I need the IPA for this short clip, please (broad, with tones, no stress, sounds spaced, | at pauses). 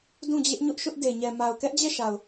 d ũ˦˨ d͡ʑ ɪ˦ ʔ ɲ ʊ˦ ʔ ʃ ʊ˦ ʔ d e˨ ɲ ɛ˨ m a˨ ʊ̯ k ɛ˦ ʔ d͡ʑ ɛ˦˨ ʃ a˨ ʊ̯